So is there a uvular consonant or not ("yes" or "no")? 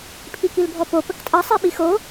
no